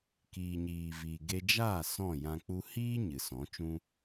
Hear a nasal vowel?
yes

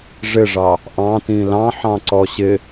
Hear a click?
yes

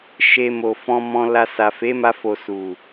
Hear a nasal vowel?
yes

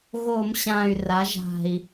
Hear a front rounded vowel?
yes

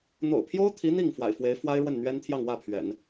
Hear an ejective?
no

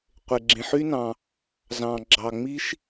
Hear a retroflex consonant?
no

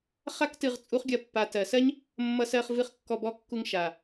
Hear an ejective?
yes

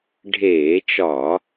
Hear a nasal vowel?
no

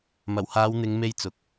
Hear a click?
no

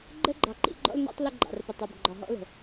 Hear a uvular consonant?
no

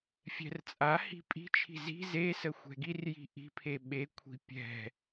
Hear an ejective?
yes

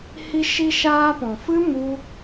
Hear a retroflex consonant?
no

